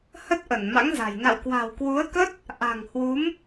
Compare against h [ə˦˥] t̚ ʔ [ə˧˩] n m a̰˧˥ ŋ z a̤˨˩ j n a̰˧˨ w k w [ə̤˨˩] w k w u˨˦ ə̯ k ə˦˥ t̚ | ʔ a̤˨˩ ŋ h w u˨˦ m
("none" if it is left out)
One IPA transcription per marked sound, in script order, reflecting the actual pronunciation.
ə˦˥, ə˧˩, a̤˨˩

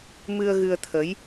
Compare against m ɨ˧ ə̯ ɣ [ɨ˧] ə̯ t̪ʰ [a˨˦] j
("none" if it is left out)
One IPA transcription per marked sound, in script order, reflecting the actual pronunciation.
ɨ˧, ə˨˦

